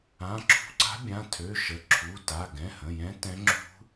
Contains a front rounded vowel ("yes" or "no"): yes